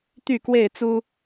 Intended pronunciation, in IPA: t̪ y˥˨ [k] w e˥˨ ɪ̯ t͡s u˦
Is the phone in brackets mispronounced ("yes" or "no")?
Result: no